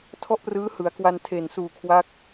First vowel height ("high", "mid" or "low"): mid